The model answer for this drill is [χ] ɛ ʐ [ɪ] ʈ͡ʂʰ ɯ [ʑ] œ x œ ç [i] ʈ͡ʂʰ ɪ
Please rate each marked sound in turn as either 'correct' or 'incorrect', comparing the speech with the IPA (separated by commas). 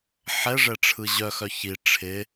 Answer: incorrect, incorrect, correct, correct